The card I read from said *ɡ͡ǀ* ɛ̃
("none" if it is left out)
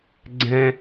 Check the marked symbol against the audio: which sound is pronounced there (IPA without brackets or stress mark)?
ɡ͡ǀ